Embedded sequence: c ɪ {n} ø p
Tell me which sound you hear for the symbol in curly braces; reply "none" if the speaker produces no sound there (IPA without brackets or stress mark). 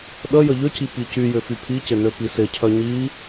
n